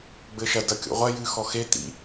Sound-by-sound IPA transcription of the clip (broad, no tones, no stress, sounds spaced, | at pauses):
ɡ͡b ɘ ʃ ɐ d ɐ kʲ o̰ ʁʷ ɐ j ɨ x ɔ x e t̪ ḭ